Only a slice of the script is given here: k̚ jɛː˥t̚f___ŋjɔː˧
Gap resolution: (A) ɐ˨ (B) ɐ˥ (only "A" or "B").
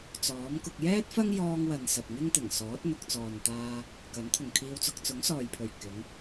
B